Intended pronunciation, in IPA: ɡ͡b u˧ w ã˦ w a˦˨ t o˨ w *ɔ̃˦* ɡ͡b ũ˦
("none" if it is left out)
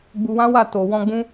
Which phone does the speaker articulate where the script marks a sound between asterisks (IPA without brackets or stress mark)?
ɔ̃˧